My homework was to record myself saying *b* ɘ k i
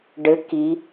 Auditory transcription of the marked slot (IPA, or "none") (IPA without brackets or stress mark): ɖ